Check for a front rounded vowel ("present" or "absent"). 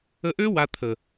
present